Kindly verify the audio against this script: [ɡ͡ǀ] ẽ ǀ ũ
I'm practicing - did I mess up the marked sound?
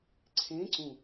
yes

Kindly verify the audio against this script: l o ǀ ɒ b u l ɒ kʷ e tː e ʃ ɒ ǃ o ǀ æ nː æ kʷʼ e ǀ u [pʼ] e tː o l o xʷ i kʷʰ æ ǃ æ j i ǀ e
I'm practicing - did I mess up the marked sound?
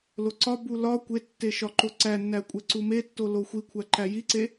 yes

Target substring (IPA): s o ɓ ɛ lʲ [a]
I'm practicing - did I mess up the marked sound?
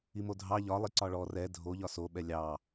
yes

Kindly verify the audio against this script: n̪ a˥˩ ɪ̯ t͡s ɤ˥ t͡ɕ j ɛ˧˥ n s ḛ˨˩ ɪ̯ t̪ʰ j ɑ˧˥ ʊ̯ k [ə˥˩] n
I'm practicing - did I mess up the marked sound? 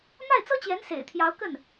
no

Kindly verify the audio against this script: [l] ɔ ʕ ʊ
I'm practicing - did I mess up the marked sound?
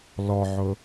no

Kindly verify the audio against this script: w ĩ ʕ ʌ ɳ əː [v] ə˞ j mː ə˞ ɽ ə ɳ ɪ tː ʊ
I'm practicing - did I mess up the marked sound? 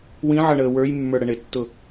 yes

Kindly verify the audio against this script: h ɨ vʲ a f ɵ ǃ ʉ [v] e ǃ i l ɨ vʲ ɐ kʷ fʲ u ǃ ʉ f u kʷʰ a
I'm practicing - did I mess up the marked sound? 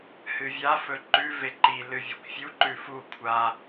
no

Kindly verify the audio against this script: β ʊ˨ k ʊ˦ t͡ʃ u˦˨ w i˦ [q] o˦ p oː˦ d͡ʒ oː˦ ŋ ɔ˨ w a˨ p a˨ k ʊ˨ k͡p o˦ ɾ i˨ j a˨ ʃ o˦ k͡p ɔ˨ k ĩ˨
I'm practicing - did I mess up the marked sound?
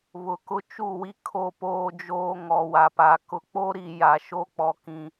yes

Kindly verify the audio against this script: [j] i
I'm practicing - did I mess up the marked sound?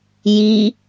no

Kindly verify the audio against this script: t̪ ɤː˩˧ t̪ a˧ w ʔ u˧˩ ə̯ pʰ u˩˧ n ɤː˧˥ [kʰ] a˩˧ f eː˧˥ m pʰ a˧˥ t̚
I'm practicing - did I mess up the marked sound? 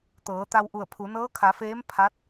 no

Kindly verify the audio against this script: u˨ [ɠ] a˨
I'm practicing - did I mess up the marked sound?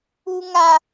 yes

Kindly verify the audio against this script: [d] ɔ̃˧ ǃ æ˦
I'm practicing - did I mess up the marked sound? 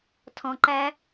yes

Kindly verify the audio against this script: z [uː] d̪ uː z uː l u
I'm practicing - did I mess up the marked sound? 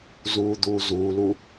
no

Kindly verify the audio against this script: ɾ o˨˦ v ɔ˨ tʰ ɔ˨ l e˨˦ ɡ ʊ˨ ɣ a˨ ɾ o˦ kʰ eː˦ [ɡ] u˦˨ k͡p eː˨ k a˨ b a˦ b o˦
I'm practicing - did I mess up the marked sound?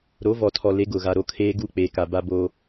no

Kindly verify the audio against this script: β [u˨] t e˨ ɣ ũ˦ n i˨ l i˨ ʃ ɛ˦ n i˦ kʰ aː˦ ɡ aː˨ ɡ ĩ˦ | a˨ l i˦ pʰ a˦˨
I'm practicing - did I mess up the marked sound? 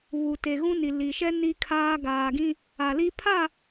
no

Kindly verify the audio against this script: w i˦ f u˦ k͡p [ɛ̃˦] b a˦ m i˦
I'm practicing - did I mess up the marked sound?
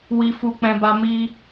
no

